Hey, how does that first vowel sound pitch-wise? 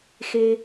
high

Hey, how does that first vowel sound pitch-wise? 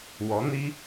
rising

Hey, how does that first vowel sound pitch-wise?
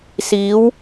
rising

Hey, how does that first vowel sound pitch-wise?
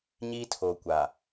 high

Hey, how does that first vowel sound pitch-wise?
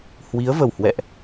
rising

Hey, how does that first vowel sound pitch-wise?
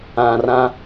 low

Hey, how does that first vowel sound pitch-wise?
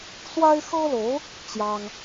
high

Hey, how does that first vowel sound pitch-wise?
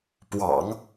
low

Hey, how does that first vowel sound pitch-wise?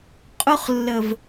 high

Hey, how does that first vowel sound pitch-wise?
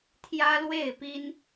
high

